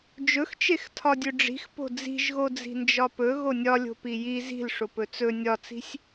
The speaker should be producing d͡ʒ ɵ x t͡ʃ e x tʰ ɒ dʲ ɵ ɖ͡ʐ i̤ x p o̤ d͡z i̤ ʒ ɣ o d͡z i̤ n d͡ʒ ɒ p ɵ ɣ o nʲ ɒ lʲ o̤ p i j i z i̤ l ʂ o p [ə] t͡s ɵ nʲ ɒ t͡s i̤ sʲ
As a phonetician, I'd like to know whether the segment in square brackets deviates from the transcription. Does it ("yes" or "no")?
yes